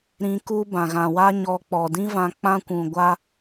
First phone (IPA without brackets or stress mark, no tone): ɾ